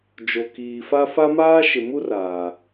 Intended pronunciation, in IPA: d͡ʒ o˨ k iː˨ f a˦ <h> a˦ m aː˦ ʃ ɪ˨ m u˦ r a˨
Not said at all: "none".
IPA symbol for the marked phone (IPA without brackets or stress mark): f